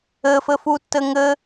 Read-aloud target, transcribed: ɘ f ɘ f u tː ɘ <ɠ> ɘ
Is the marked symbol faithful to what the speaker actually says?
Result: no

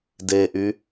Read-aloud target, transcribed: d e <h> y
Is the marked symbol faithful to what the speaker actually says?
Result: no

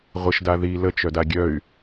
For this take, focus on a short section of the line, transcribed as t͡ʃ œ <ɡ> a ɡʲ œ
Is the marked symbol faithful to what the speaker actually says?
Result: no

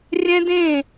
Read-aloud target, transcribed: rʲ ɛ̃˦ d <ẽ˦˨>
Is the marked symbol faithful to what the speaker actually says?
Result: yes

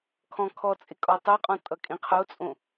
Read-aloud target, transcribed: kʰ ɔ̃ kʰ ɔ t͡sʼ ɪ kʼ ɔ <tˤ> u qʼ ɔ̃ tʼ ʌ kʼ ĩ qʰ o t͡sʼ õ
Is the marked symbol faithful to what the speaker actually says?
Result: yes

